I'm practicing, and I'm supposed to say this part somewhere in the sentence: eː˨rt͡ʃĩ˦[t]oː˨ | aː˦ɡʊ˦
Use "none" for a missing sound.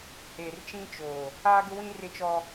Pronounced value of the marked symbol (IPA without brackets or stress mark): t͡ʃ